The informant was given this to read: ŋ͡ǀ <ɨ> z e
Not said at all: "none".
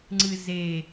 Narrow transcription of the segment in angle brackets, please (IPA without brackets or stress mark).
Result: ɨ